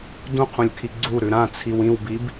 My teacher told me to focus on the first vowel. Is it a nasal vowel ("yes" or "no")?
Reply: yes